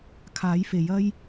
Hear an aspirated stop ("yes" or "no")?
yes